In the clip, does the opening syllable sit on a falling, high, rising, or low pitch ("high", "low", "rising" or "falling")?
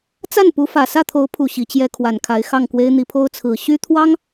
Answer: falling